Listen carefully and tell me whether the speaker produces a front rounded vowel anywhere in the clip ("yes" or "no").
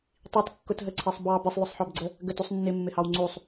no